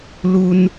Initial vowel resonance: oral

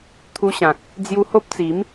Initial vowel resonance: oral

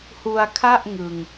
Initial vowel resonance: oral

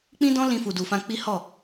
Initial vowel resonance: nasal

